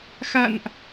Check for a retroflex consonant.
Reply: absent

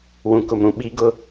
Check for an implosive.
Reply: present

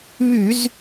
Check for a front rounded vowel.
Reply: present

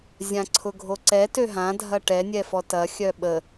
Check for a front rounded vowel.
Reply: present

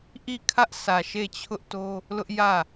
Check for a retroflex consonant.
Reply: absent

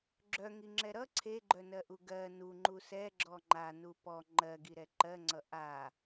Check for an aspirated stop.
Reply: present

